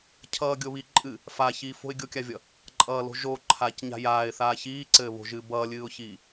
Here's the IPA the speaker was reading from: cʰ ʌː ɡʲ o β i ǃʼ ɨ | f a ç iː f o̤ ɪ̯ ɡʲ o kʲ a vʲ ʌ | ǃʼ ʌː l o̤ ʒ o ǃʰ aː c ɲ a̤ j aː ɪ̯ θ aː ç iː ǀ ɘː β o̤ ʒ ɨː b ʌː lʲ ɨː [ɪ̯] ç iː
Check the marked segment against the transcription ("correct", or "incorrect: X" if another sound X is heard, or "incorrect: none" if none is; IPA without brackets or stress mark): incorrect: ʊ̯